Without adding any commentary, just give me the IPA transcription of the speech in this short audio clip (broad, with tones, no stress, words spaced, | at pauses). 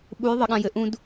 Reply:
ɓu˨˦j ðˤɘ˨ɠã˨jɘ˨ ʔũ˦d